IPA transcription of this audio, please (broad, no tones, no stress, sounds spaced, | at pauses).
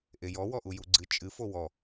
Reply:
ʔ e j ɔ w ɔ ʔ u j u ɡ͡ǀ ɨ t͡ʃʼ ɨ f o w ɔ